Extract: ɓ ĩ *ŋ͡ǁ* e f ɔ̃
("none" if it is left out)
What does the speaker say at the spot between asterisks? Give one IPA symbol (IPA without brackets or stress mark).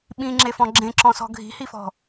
ŋ͡ǁ